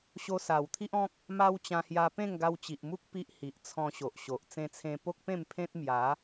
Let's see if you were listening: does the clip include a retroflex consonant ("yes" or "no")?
no